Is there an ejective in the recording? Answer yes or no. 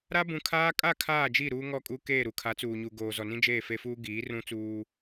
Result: yes